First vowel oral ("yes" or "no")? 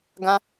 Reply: no